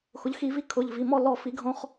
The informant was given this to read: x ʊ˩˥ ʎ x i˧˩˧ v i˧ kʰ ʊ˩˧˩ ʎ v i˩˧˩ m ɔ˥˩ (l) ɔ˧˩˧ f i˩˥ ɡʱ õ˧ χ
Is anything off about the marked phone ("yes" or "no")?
no